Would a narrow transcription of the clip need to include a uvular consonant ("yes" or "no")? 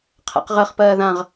yes